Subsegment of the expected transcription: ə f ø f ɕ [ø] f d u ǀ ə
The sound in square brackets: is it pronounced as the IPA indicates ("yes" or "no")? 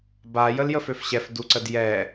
no